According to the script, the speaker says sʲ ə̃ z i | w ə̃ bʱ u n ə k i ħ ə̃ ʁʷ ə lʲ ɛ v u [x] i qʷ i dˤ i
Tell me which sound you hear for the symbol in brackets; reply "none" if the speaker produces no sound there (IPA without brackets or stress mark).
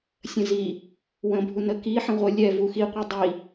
x